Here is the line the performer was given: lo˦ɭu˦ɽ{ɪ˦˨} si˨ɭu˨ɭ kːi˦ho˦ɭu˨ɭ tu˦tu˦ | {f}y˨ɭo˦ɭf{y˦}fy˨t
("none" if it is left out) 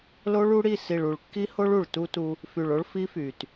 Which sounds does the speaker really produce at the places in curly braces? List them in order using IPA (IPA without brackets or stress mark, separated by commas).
i˦˨, f, i˦